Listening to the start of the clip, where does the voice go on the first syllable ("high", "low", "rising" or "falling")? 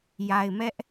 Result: low